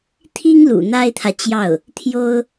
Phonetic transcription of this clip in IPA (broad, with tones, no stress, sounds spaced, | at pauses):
t̪ʰ i˥ ŋ l ṵ˨˩ n̪ a˥ ɪ̯ t̪ʰ ä˨ t͡ɕ j ɑ˥˩ ʊ̯ | t̪ʰ j o˥ ʊ̯